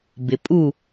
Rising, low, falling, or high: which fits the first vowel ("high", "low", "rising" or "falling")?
low